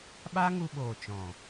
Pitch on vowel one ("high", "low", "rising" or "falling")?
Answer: high